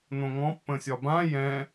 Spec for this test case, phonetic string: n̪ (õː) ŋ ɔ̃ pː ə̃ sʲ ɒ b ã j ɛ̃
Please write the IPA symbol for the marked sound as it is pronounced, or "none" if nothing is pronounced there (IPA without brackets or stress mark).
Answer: õ